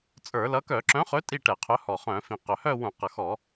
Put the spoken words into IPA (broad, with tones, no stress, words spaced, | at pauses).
t͡sʼə˞˧˩˧lʌ˨˥ kœ˧˩˧ǁœ̃˨˥χɵ˨˥ tʼi˥˧ʈɛ˧˩˧qʰœ˨˥ hɔ˨˩ χœ̃˧˩˧fĩ˨˩ qœ˨˩hœ˥˧wũ˧˩˧ qʌ˨˩xɔ˧˩˧